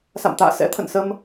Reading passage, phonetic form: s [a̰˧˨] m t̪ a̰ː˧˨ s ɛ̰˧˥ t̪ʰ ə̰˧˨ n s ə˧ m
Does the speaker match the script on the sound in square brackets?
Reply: yes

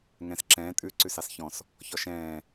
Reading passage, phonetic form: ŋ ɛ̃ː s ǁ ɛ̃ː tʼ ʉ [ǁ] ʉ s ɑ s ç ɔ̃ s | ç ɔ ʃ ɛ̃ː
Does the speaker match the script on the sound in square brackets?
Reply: no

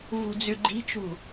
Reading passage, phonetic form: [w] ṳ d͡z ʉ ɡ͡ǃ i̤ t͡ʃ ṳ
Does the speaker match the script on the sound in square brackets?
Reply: no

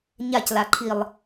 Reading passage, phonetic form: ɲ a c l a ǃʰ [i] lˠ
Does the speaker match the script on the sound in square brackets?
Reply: yes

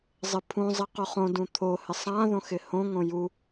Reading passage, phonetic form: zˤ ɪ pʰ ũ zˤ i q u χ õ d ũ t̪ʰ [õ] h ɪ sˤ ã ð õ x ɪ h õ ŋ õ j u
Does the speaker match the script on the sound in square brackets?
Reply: no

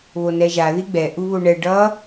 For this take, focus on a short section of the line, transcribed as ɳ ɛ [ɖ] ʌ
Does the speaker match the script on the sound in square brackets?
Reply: yes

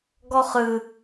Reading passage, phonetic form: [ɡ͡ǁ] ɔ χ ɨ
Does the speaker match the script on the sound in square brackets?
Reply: no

